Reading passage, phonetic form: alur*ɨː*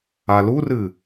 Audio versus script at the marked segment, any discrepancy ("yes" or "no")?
yes